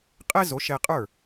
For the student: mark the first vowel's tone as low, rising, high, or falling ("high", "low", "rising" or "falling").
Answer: high